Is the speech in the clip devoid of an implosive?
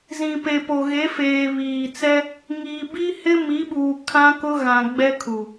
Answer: no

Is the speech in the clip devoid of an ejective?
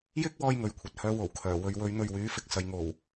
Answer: yes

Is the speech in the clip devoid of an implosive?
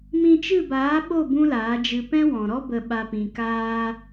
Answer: no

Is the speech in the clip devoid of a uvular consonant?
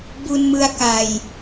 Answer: yes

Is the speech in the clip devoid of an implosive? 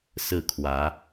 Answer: yes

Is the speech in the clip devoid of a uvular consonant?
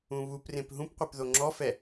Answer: no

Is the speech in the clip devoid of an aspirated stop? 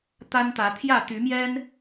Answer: no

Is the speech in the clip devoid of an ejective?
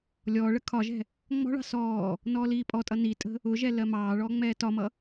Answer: no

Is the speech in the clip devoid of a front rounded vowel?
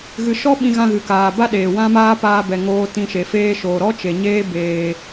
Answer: yes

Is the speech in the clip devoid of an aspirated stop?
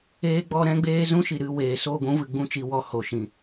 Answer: yes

